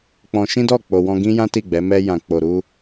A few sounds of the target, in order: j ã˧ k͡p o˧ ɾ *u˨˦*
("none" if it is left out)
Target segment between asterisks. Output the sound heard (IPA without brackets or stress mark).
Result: u˦